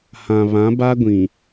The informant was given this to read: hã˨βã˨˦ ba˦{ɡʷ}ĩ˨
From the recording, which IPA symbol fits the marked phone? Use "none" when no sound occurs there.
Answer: ɡʷ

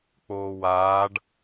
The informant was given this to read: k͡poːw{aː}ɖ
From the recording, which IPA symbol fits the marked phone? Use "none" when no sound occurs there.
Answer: aː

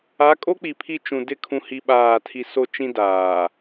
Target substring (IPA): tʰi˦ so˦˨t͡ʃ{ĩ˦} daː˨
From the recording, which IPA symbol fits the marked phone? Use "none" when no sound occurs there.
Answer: ĩ˦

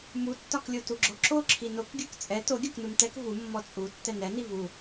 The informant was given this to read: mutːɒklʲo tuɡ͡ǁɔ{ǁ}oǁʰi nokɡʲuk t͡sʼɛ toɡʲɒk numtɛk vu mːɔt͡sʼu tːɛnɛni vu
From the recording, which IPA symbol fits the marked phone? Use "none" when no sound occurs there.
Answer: ǁ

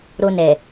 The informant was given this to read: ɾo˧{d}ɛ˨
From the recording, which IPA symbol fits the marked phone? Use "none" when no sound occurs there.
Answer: n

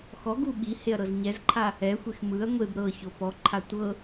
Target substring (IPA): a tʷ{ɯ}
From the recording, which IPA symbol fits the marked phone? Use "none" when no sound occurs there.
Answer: ɤ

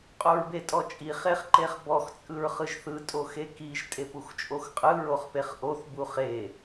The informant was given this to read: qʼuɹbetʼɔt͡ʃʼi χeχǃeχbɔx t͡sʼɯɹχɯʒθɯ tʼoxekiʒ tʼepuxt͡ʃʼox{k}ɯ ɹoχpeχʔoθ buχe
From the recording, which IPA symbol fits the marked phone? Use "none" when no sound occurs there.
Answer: qʼ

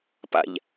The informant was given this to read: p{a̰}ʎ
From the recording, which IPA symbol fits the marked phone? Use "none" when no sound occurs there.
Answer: a̰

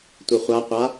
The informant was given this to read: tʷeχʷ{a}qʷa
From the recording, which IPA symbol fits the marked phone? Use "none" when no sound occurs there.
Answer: a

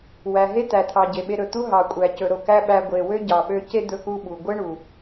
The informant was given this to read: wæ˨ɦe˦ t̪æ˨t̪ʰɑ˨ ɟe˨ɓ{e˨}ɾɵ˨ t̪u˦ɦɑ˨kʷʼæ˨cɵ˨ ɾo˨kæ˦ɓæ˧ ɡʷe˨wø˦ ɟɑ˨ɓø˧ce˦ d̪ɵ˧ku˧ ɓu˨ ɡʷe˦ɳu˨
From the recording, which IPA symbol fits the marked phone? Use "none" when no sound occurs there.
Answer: e˧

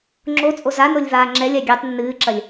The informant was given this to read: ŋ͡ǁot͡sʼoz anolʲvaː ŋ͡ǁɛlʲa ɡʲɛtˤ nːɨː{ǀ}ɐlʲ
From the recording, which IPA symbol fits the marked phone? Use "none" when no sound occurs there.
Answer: ǁ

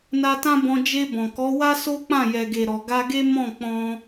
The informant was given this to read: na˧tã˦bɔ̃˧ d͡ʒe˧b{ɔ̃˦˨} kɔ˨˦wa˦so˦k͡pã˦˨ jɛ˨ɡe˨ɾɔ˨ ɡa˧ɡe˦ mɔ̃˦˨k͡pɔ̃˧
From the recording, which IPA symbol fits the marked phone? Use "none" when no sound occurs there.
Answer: ɔ̃˨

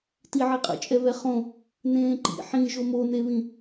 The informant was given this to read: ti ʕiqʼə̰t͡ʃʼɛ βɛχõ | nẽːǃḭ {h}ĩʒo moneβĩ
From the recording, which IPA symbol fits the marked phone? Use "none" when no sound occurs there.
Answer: ħ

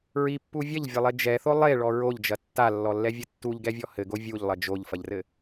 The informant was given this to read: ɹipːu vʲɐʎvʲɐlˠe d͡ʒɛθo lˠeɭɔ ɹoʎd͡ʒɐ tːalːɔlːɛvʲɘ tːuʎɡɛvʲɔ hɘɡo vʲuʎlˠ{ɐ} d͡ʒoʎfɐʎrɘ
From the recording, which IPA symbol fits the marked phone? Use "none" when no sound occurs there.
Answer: ɐ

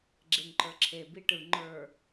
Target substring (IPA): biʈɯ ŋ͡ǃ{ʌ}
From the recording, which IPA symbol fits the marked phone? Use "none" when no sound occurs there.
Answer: ə˞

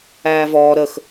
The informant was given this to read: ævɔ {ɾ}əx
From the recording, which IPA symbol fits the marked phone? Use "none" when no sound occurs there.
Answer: ɾ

